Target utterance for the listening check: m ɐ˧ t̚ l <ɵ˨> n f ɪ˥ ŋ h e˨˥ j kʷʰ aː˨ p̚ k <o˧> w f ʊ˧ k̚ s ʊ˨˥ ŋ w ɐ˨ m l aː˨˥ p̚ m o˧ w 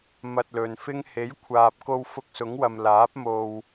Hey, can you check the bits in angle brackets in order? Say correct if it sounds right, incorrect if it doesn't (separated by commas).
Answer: correct, correct